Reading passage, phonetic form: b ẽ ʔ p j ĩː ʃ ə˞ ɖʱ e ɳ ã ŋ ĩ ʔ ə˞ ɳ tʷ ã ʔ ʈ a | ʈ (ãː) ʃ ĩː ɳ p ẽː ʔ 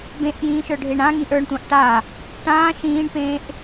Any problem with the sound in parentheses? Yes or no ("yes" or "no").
no